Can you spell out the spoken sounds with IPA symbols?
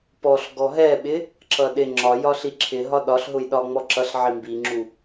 p ɔ ɬ ɡ ɔ ɦ ɛ ɓ ɪ | ǁ ʌ ɗ ɪ ŋ͡ǁ ɒ j ɒ ɬ i ǁʰ ɪ ɦ ɒ ɗ ɒ ɬ ɦ ʊ j ɗ ɒ ŋ͡m ɔ ǁ ʌ ɬ ʕ i m b i ŋ͡ǁ u

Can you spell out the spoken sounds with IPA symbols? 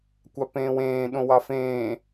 kʷ ɑ p ẽː w ẽː ɗ õ w ɑ f ẽː

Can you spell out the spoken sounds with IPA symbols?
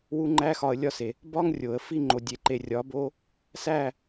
w u˧ ŋ͡ǃ æ˧ x ɒ˨ ə̯ lʲ ɒ˦ s e˨ | b ɒ˦ ŋ rʲ o˨ ə̯ f i˦ ŋ͡ǃ o˨ dʲ e˨ ǃ e˨ rʲ ɒ˨˦ b o˦ | s æ˦˨

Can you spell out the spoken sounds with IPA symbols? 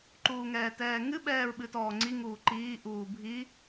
ǃ uː ŋ ɛː t ɛː ŋ ɨ ɓ ɛː ɹ ɓ ɨ t ɔː ŋ͡ǀ i ŋ uː ǃ iː ʔ uː bʱ i

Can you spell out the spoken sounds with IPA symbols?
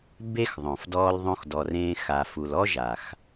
b e˦ x ðˤ õ˨ f d ɔː˧ l ðˤ õ˧ x d ɔ˨ r ẽː˧ x a˨ f u˨ l ɔ˦ ʒ a˨ x

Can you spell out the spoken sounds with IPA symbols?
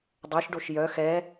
dˤ ɵ ʃ ɖ o ʃ j œ x ɛ

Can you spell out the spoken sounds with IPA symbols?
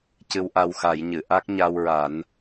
c ɨ˧ w ʔ a˧ w x a˨˩˦ j ɲ ɨ˨˩˨ ʔ a˦˥ k̚ ɲ a˧ w ɹ a˨˩˦ n

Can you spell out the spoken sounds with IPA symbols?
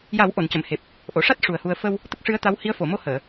j a˨˩˦ w ʔ o˨˩˨ n c ə˨˩˨ m h e˨˩ p̚ | ʔ o˨˩˨ ʂ a˦˥ t̚ ʂ u˨˩ ə̯ h u˧ ə̯ f ə˧ w | t̪ ə˦˥ k̚ ʂ ɨ˧˥ ə̯ t̪ a˧˥ w h i˧˥ ə̯ f o˨˩˨ m o˧ h əː˨˩˨

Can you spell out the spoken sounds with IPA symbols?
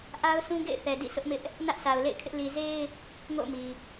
ʔ a˦ ʊ̯ sʰ ũ˦ ɡ ḛ˦˨ ɪ̯ θ ɛ˨ d ḭ˦˨ s ʊ˦ ʔ m ɪ˦ ʔ | n ä˦ ʔ s a˨ ʊ̯ l ḛ˦˨ ɪ̯ kʰ ɪ˦ ʔ l i˨ z e˦ ɪ̯ | ŋ o̰˦˨ ʊ̯ m i˨

